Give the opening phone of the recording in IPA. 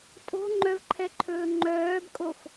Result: tʼ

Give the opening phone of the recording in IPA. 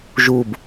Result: ʒ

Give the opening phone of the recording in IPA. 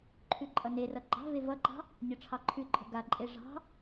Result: ǃʰ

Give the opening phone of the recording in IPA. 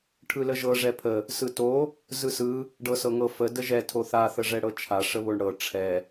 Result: ʈʰ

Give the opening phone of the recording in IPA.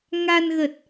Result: ŋ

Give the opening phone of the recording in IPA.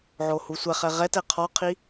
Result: ʕ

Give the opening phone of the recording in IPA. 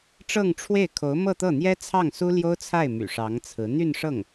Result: ʈ͡ʂ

